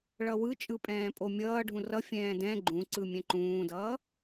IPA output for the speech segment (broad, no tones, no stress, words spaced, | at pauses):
ɭʌwɯt͡ʃʼɯpʼɛ̃ː pʼomʲʌː ɖʱũrʌfʲɛ̃ː dɛ̃ ɡ͡ǃũ ǀɯmʲɛ̃ǃũːdʌː